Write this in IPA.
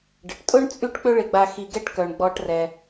ɖ ə˩ ʈ tʼ ʊ˥ ɳ t͡sʼ y˦ ʈ k͡p ʏ˦ ɭ ɪ˨ ɡ͡b a˨ x i˨ ɡ ɛ˦ ʈ k œ˩ ɳ ɡ͡b ɔ˨ ʈ r ɛ˩

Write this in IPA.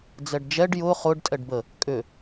d͡z ɛ ɖ d͡ʒ ɛ ɖ j ʊ χ ʊ ɖ tʼ ɛ ɖ b ə | kʼ ʏ

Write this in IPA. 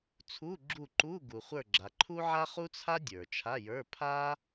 t͡sʰ u˧˥˧ ɡ͡ǁ u˦˨ ǃ u˧˥˧ ɡ u˨ χʷ ə˞˦˨ ɡ͡ǁ a˨ ǃʰ u˥ ʕ a˥ χ u˥ t͡sʰ a˥ dʲ ə˞˨ t͡ʃʰ a˧˥˧ j ə˞˧˥˧ pʰ a˥

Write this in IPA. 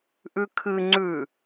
ʔ ʉ kʰ ɨ ŋ͡ǀ ʉ

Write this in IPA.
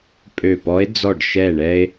pʼ ø˧˩ p ɔ˧˥ e̯ d͡z ɔ˧˩ ɖ ʃ ɛ˧˩ ɳ ɛ˧ e̯

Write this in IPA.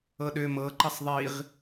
ɤ ɗ ø m ɤ ǃ ʌ sˤ ðˤ i ʁ

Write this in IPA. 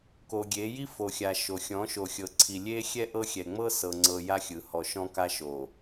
k o˨ ɡʲ e˨˦ j i˦ f o˨ xʲ a˨ ʃ o˨ xʲ ɔ̃˨˦ ʃ o˨ xʲ ɤ˨ ǀʰ i˨ lʲ e˦ xʲ ɛ˦ ʔ ɤ˦ xʲ ɛ˨ ŋ͡m ɤ˦ s ɤ˨ ŋ͡ǀ ɤ˨ j a˦ xʲ ɯ˨ h ɔ˨ ʃ ɔ̃˦ k a˦ ʃ o˨

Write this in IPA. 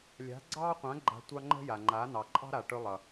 lʲ a̤˨˦ ɡ͡ǀ ɑː˦ qʷ ã˨˦ ɡ͡ǃ a̤˧ tʷ ɑ˧ ŋ͡ǃ ə̤˧ j a˨ ŋ͡ǃ a˨˦ n ɑ˨ ǃʼ ɑ̤˦ ɾ a˨ ʈ ɵ˧ lˠ ʌ˨

